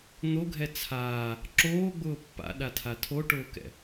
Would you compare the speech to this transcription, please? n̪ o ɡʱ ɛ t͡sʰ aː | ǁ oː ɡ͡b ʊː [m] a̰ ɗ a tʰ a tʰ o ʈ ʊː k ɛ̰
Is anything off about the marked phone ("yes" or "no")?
yes